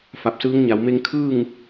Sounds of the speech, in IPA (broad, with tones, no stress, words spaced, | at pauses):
fa˧˩p̚sɯː˧˥ŋɲa˩˧w me˧ŋkʰɯː˥˨ŋ